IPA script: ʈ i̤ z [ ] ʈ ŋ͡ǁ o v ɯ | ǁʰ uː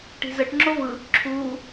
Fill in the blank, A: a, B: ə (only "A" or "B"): B